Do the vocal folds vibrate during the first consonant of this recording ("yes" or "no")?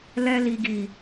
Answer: yes